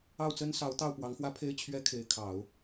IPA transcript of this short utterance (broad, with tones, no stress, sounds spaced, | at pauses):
ɑ˥˩ ʊ̯ t͡s ə˥ n s ɑ˧˥ ʊ̯ t̪ ɑ˥˩ ʊ̯ p w ɑ˧˥ ŋ x w ä˥ pʰ e˥ ɪ̯ t͡ɕʰ ɥ ɛ˥ kʰ e˧˥ ɪ̯ kʰ ɑ˨˩˦ ʊ̯